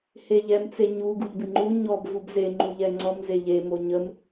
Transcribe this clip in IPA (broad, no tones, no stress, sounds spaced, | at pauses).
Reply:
h e ʎ ɛ m t͡s e ɲ u ɡ u ʎ b ɪ ŋ͡ǃ u ɲ ɔ b v u b z e ŋ͡ǃ u ʎ ɛ ŋ͡ǀ ɔ m z e ʎ e m o ɲ ə m